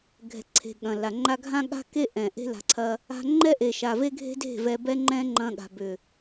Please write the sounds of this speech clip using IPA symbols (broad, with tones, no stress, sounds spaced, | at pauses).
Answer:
ɡʱ ɛ̤˨ ǀʰ e̤˨ ɠ ɐ̃˨ l a˨ ŋ͡ǃ a˦ ɡʱ ã˦ ɠ a̤˦ k e˦ ʔ ɛ̃˨ ʔ e̤˦ l a̤˨ ǀʰ ɐ˦ | a̤˦ ŋ͡ǃ ɛ˦ ʔ e˨ ʃ a˨ v e˦ ɡʱ e̤˦ d e̤˦˨ v ɛ˦ b ɛ˦ ŋ͡ǃ ɛ̃˦ ŋ͡ǃ ɐ̃˦ ɠ a̤˨ b ʏ˨